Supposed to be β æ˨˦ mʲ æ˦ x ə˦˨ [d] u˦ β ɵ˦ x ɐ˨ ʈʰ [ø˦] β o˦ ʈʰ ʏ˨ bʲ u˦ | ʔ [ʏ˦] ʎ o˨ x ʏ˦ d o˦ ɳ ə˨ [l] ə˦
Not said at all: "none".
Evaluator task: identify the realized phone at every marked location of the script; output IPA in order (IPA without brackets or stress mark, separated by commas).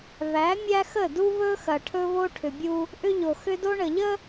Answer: d, ɵ˦, ʏ˦, ʎ